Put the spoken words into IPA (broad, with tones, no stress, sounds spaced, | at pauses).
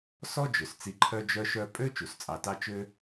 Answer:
s ɔ˥ d͡ʒ ø˩ s t͡s i˨ ǃʰ œ˦ d͡ʒ œ˦ ʃ œ˦ pʼ ø˥ t͡ʃ u˩ s t͡sʼ ɑ˨ t ɑ˦ t͡ʃ ø˦